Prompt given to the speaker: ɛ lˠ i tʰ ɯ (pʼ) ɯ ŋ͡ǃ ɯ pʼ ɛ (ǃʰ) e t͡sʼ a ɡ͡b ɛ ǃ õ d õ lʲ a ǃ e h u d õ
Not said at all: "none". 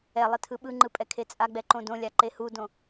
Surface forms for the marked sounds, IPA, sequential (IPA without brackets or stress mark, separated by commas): ɓ, kʰ